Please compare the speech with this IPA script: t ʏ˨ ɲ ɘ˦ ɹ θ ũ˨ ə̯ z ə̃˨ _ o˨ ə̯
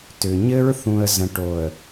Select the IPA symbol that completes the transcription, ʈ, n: ʈ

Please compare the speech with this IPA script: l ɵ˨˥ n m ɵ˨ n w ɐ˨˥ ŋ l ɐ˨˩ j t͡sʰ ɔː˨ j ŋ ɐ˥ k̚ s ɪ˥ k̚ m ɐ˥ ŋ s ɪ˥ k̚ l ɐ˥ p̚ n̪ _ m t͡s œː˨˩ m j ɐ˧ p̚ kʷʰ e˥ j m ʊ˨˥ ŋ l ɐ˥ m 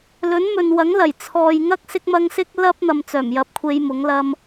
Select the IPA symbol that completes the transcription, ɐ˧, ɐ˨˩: ɐ˧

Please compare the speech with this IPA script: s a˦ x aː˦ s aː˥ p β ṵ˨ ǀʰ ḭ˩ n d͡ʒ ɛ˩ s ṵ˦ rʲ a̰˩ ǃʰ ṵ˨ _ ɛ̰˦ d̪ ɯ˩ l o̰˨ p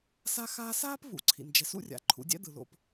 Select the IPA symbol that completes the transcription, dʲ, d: dʲ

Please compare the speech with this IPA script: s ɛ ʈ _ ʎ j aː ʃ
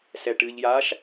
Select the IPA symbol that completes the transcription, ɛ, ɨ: ɨ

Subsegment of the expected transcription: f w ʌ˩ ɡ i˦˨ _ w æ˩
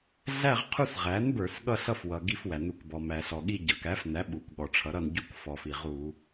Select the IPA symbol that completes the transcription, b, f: f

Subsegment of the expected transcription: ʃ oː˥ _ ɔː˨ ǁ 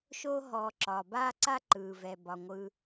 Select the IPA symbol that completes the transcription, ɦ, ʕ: ɦ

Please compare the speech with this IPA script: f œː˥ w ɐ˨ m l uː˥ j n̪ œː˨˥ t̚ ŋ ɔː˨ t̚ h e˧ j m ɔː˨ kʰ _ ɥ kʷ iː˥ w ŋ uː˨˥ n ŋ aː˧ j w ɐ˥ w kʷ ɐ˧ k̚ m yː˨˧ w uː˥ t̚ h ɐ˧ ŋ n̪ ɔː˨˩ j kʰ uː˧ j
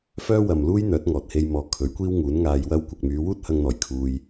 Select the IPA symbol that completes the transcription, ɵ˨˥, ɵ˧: ɵ˨˥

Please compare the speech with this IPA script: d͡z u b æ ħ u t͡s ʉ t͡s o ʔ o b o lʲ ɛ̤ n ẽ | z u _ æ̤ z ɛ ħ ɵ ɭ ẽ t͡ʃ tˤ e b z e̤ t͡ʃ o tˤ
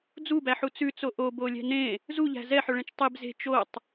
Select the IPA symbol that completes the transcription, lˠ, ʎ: ʎ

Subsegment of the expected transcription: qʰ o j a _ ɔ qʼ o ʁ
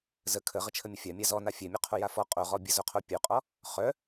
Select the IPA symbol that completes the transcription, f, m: f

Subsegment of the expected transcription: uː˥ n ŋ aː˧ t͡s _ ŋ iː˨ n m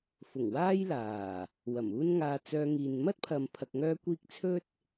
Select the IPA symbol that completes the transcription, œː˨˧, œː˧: œː˧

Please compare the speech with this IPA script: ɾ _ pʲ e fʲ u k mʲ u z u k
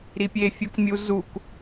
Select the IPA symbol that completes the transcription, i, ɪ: i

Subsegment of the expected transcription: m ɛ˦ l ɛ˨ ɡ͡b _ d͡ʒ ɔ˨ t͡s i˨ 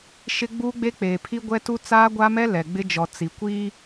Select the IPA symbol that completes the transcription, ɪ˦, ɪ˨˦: ɪ˦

